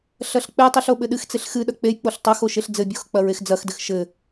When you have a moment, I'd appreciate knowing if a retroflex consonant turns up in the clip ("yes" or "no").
no